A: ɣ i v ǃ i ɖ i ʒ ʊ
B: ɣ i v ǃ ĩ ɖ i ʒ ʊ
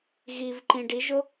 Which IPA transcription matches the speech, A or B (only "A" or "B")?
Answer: B